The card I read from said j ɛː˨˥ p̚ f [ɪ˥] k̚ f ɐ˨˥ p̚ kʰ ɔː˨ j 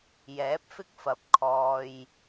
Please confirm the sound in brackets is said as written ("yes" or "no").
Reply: yes